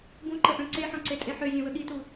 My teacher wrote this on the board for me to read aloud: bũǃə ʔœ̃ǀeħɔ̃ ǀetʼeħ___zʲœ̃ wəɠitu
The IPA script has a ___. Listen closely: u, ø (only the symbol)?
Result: ø